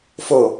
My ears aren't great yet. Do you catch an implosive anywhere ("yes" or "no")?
no